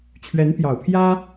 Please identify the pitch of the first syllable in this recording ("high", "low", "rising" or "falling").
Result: rising